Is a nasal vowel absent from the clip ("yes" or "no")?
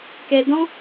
no